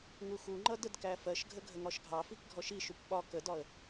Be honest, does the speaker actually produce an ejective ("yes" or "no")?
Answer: no